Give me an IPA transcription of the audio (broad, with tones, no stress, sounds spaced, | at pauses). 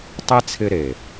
tˤ ɛ˦ t͡sʰ ɪ˧ ɾ e˨